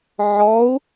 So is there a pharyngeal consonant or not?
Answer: yes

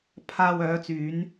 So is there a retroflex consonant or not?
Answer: no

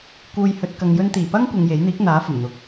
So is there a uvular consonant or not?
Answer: no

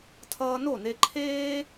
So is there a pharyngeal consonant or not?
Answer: no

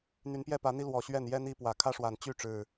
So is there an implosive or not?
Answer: no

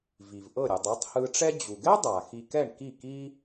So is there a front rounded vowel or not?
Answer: no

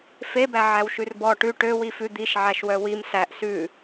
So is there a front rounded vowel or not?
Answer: yes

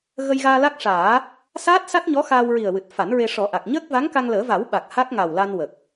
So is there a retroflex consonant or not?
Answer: yes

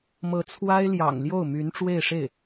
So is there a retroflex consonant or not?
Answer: yes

